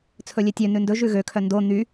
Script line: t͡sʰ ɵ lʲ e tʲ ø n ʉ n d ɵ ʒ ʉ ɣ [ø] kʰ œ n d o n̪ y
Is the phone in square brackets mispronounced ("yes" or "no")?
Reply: no